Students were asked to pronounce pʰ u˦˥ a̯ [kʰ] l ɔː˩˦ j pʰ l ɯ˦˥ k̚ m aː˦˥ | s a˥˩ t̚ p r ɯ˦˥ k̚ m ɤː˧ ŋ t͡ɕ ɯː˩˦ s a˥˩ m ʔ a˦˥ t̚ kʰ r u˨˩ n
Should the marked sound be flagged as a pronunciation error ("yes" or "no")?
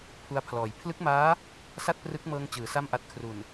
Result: yes